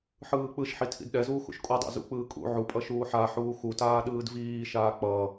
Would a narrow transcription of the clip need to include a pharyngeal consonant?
yes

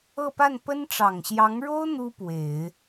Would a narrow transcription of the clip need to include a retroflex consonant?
yes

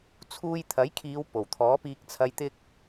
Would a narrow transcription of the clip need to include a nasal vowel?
no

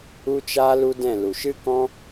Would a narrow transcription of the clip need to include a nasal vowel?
yes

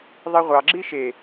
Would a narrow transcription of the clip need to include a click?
yes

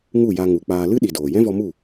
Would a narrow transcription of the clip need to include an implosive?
yes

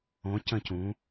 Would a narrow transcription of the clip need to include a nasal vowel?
yes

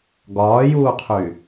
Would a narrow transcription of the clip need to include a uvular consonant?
yes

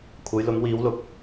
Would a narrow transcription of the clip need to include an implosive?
no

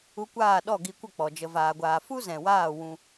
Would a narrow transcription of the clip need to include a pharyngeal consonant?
no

